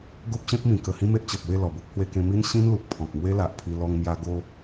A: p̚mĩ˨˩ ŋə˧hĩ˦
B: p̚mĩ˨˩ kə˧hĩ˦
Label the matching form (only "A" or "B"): B